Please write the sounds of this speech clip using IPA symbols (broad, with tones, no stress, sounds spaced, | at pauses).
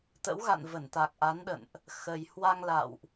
t̪ ə̰˧˥ w ɣ a̰˧˨ n v ə˧˩ n t̪ a˨˩ k̚ ʔ a˨˦ n ɗ ə̰˧˨ n ʔ | x ə˨˩ j h w a˧ ŋ l a̰˧˨ w ʔ